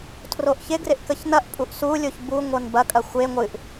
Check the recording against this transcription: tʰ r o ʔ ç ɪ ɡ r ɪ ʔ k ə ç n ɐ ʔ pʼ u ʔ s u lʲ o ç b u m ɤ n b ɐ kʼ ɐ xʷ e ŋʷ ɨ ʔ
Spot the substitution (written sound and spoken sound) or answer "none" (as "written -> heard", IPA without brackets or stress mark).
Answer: m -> ŋʷ